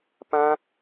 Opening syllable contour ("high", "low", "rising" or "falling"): high